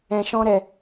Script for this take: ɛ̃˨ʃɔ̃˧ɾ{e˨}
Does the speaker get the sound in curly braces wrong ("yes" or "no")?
yes